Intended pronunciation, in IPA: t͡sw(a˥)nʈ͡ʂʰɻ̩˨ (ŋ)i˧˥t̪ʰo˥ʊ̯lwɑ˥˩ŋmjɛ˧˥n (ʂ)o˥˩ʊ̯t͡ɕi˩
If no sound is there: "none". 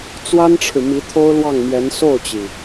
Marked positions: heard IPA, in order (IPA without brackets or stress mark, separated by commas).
a˥, m, s